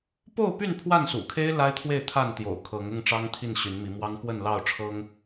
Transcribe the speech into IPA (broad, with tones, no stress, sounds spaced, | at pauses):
p o˥˨ ʊ̯ p y˥˨ n pʰ w a˥˨ n s ṵ˨˩ kʰ e˦ ɪ̯ l a˦ ɪ̯ t̪ʰ w e˥˨ ɪ̯ t̪ʰ a˥˨ n t̪ j o̰˨˩ ʊ̯ kʰ ɤ˨˦ ŋ ʊ˥˨ ŋ ʈ͡ʂ ɑ˦ ŋ t̪ʰ i˥˨ n ɕ y˨˦ n m i˨˦ m w ɑ˦ ŋ p w ə˥˨ n l ɑ˥˨ ʊ̯ ʈ͡ʂʰ ɤ˦ ŋ